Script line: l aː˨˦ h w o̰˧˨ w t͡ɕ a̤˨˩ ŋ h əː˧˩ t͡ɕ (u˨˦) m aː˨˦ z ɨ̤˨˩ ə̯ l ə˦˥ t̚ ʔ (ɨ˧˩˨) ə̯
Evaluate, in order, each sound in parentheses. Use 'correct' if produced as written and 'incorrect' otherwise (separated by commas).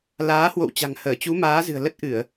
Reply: correct, correct